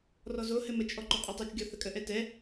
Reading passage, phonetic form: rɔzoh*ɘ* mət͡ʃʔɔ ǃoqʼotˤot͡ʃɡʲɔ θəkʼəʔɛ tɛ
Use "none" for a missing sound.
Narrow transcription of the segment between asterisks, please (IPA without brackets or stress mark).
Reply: ɘ